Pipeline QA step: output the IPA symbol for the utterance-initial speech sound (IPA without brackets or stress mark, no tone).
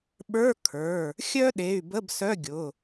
ɓ